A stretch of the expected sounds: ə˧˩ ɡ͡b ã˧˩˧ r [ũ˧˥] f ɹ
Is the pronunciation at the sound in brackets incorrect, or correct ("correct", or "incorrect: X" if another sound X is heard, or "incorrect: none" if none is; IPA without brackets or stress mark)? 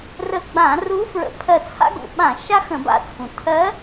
incorrect: u˧˥